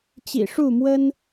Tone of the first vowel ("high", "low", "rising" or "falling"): low